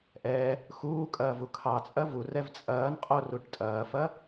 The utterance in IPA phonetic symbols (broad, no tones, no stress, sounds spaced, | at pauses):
ʔ ɛ | x uː kʼ ɐː v u kʰ ɑ t͡sʼ ɐ v u r ɛ v t͡sʼ ɐː n qʼ o r u ʈ tʼ ɐː f ɐ